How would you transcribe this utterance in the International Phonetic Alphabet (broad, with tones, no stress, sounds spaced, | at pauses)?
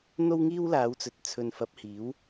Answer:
n̪ o˥ w ŋ iː˥ w l aː˨˧ w t͡s ɵ˨ t̚ t͡sʰ ɵ˨ n f ɐ˨˥ p̚ h iː˨˥ w